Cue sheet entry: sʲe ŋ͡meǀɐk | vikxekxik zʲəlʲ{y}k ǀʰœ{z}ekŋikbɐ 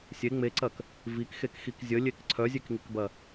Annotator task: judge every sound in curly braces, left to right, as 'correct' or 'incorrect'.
incorrect: e, incorrect: zʲ

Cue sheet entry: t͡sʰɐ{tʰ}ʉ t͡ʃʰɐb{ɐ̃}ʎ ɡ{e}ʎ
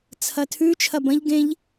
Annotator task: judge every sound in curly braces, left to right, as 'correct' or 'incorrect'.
correct, correct, incorrect: ẽ

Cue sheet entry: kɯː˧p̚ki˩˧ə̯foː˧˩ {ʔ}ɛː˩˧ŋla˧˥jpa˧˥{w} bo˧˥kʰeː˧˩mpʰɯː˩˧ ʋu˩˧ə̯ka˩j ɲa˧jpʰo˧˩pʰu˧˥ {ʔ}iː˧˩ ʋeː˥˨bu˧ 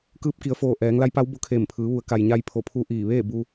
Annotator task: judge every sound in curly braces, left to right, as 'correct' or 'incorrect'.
correct, correct, correct

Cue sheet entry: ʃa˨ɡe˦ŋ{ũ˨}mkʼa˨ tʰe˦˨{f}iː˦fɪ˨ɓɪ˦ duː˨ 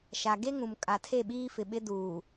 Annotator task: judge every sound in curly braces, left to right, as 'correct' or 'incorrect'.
correct, incorrect: ɓ

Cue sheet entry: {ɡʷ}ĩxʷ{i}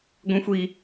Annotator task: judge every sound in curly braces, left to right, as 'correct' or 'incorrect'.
correct, correct

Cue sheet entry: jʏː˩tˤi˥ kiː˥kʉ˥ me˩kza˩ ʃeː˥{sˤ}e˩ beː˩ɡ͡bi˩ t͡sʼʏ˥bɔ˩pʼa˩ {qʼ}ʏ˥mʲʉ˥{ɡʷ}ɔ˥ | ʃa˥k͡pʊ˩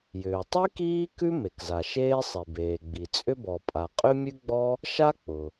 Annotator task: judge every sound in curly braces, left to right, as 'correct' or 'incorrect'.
correct, correct, incorrect: ɡ͡b

